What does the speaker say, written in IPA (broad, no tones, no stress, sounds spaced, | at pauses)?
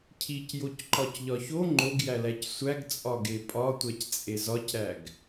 cʰ i c j o c ǃ ɒ c ʎ ɒ ç o ŋ͡ǃ o ɡ j æ l æ c sʷ æ ɡ t͡sʼ ɒ ɡ e pʼ ɒ tʷ æ c t͡sʼ e z ɒ c ɾ æ ɡ